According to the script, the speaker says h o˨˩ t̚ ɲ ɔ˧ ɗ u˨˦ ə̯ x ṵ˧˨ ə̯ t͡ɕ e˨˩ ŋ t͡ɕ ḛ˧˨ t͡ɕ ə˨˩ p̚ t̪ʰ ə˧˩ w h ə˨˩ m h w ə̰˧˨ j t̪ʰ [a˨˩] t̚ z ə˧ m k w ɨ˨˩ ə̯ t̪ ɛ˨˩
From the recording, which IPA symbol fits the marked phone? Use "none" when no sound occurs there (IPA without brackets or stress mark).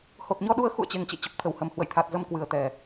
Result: a˨˩